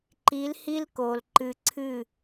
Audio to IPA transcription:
ǃ i˨˦ l h i˦ l k o˨ l ǃ ɨ˨ ǀʰ ɨ˦˨

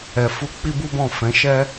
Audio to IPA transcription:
ɛ˨ f u˧ k͡p i˦ b u˦ b ɔ̃˦˨ f ɛ̃˨˦ ʃ ɛ˦

